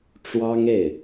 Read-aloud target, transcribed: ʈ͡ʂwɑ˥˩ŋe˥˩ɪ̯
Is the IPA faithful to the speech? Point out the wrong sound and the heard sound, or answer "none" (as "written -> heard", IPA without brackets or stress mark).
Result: ɑ˥˩ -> ɑ˥